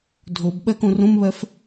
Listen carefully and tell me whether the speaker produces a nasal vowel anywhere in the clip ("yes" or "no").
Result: yes